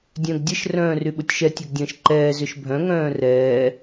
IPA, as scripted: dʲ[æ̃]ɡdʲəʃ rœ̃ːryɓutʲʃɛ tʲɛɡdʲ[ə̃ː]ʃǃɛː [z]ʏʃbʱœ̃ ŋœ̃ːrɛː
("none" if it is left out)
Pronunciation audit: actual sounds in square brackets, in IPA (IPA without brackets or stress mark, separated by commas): œ̃, ə̃ː, z